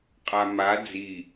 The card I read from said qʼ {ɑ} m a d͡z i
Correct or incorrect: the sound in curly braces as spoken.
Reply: incorrect: a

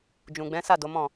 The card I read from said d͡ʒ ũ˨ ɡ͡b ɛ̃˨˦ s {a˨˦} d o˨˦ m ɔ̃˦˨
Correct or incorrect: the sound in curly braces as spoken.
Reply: incorrect: a˦˨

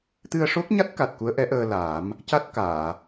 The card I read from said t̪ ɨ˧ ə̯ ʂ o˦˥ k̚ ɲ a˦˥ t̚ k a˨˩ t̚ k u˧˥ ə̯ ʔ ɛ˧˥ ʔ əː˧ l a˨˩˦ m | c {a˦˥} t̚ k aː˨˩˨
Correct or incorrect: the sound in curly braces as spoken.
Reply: correct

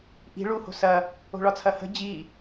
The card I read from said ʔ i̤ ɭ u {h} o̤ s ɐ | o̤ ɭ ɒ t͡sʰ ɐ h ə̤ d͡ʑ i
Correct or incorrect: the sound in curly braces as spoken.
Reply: correct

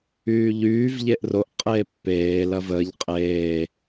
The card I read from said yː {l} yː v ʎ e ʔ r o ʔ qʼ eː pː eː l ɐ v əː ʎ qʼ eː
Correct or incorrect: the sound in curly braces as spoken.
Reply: incorrect: ʎ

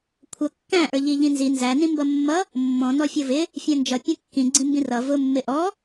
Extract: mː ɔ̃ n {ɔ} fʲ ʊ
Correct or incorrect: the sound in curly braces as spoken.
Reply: correct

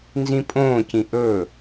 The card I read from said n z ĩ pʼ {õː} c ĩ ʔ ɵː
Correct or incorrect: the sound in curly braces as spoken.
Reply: correct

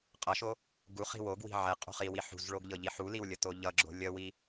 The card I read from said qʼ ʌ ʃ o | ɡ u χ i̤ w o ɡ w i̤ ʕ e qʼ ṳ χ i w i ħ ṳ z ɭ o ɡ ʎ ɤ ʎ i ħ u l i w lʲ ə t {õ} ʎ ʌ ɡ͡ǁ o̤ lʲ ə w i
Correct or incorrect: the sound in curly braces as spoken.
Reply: incorrect: o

